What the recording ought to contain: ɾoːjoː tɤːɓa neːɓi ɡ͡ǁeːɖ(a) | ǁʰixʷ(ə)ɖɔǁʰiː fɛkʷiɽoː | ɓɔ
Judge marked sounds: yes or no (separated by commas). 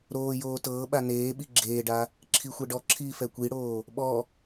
yes, no